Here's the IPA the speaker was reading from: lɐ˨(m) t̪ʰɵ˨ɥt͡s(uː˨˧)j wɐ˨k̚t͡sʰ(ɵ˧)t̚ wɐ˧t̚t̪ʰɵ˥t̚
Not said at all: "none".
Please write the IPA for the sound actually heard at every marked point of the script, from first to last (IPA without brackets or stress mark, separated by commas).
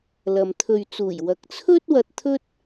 m, uː˨˩, ɵ˥